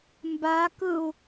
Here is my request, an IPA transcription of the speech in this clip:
m b a k ɯ u̯

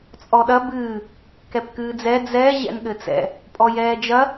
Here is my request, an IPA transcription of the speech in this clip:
t͡sʼ ɔ ɗ ɐ b ɨː | k ɛ p k ɨː d͡z ɛ d͡z ɛ ʑ ɛ̰ n ɠ ɘ t͡s ɛ̰ | pʼ ɔ j ɛː d͡ʒ ɐ

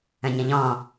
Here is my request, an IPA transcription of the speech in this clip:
ə̃ ɲ ə̃ ʎ ɔ̃

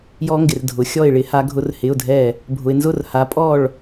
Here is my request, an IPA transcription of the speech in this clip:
j ɔ˦˥ ŋ ɡ ɪ˨ r dʱ ʊ˨˦ xʲ ɔ˥˨ ɪ̯ ɭ ɪ˦˥ h a˦˥ ɡʱ ʊ˦˥ r h ɪ˧˥˧ ʊ̯ dʱ ɛ˥˨ | bʱ ʊ˨ ɪ̯ n z ʊ˥˨ r h a˨˦ pʼ ɔ˥˨ ɭ

